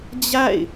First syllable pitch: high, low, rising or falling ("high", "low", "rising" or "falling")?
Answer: falling